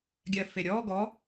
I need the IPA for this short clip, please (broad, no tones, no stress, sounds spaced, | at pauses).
ɡʲ ɜ f e ɾʲ ɔ ɡ ɔ